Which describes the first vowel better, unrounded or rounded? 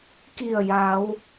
unrounded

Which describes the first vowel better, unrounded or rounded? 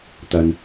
unrounded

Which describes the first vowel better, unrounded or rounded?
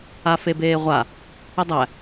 unrounded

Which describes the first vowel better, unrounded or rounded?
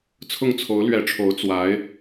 rounded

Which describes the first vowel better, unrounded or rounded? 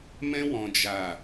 unrounded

